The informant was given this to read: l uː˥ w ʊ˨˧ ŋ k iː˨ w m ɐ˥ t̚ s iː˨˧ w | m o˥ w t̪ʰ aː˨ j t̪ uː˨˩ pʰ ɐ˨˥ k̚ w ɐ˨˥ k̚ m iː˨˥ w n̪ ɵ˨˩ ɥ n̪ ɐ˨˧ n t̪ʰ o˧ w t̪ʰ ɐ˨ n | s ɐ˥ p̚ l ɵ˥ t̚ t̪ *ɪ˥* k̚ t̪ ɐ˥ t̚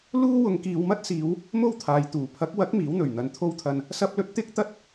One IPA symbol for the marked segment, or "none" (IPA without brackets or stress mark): ɪ˥